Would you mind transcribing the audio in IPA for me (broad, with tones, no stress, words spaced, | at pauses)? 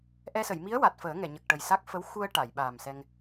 ʔɛ˧sə˨˩˨j mi˧˥ə̯ wa˨˩t̚fəː˨˩˦ ŋɛ˨˩˨ɲə˨˩k̚ʈə˨˩j sa˦˥k̚ fə˧˥w xu˧ə̯ ʈa˨˩˨jɓa˨˩msɛ˧ŋ